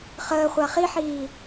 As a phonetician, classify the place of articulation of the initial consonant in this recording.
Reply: uvular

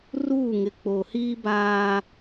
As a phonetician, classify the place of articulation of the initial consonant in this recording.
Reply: alveolar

